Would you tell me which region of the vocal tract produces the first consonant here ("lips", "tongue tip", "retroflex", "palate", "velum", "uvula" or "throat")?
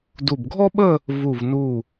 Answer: tongue tip